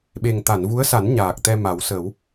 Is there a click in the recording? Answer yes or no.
no